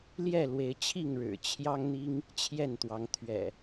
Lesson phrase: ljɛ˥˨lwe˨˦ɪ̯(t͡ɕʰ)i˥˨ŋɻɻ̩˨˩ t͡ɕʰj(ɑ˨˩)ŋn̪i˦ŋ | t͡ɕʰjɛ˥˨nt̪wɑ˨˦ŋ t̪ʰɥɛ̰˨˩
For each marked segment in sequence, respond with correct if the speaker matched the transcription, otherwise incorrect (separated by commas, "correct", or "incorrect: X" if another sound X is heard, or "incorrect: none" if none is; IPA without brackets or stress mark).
correct, incorrect: ɑ˦